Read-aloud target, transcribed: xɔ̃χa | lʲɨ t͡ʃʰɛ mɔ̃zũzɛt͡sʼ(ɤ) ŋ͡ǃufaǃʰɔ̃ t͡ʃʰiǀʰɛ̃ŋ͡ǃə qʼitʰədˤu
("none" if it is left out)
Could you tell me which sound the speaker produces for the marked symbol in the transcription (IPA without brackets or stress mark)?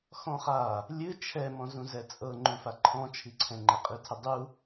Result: ɤ